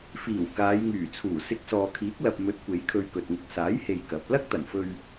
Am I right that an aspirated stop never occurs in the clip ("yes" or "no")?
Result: no